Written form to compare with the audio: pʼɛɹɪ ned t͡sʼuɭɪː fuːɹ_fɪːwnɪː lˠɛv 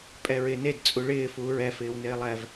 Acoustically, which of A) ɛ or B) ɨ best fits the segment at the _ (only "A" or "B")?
A